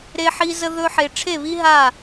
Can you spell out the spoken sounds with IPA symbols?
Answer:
ɾ e˥ ħ i˥ z ə˥ ð ɵ˥ ħ e˥ ʈ͡ʂʰ e˥˧ β i˥ ɦ a˥˧

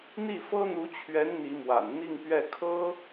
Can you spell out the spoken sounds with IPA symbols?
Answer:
n̪ i˥˩ f ɤ˥ n̪ u˧˥ t͡ɕʰ ɥ ɛ˧˥ n n̪ i˧˥ m w a̰˨˩ n n̪ i˥˧ ŋ p ɥ ɛ˥˩ kʰ ɤ˥

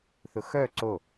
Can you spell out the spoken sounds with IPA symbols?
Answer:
θ ʊ x œ ǀ o

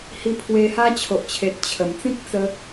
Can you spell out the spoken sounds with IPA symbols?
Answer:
h i˧ pʰ w e˧ h a˦ t͡ɕʰ o˨ ʔ t͡ɕʰ e˨ t̚ t͡ɕʰ ə˨˩ m t͡s ĩ˦ k̚ t͡s ə˧

